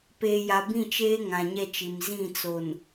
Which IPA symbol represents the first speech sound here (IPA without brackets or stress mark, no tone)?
p